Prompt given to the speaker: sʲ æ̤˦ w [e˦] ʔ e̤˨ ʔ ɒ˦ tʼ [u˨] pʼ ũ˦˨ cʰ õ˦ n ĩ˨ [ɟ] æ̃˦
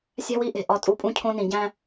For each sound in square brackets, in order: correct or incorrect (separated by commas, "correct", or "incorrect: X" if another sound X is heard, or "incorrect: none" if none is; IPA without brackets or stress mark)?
incorrect: i˦, incorrect: u˦˨, correct